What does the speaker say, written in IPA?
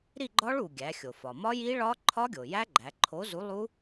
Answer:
ɾ i˥˨ ɡ͡ǃ ɒ˦˥ ɭ u˩ ɡʲ æ˩˧ xʲ o˩ f ɒ˩ m ɒ˦˥ j i˦˥ ɭ ɒ˦˥ ǃʰ ɒ˦˥ ɡʲ o˩ j æ˦˥ ɡ͡ǃ æ˩˧ ǃʰ o˨˥ z u˨˥ lˠ u˦˥

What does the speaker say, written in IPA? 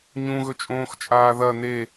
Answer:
ɲ ũ ɣ ɵ t͡ʃʼ õː x t͡ʃʼ aː ð ɐ n e

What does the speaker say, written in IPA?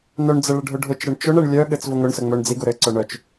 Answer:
n œ ɳ d͡z ə ɭ ə ɖʱ ʊ ɖʱ ʊ t͡ʃ ɾ ɘ ɳ t͡ʃ ʊ ɳ ɛ ɳ lʲ œ ɠ ɘ t͡s v ʊ ŋ ʊ ɳ s ə ŋ͡m œ ɳ d͡z i ɡ ʊ ɾ ɘ ǀ œ ɳ œ t͡ʃ

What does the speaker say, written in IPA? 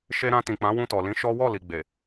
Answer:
ʃ e˧ ɾ ã˧ t ĩ˨ k͡p ã˨˦ w ũ˧ t ɔ˨ l ĩ˨˦ ʃ ɔ˦ w ɔ˦˨ l i˨ ɡ͡b e˨

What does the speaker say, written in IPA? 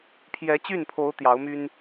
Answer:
pʰ j ɛ˧˥ t͡ɕ y˥˩ n pʰ o˧˥ ʊ̯ t̪ j ɑ˧˥ ʊ̯ m y˥ n

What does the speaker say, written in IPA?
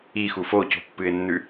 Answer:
i x u f o c o̤ pː ɨ ɪ̯ nː ʉ

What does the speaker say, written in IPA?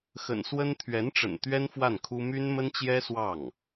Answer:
x ə̰˨˩ n s w ə˥ n t̪ʰ ɥ ɛ˧˥ n ʈ͡ʂ ə̰˨˩ n t̪ ɥ ɛ˥ n f w a˥˩ n kʰ u˥ m y˥ n m ə˥ n t͡ɕ j ɛ˥ s w ɑ˥˩ ŋ

